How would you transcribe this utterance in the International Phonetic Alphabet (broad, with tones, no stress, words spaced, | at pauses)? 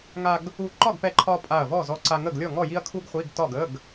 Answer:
ŋa˧ɡ | u˧˩ǃɒ˥˨ɡpɛ˧ǃʰɒ˧ pʼa˧˩ɐ̯vɔ˥˨ zɔ˧ǀa˧ ŋə˥˨ɡlʲɔ˥˨ŋɔ˥˨ ji˥ɐ̯kʰu˥ɡχʷi˧˥˧ɡtɒ˥˨ɡ ə˧˥˧ɡ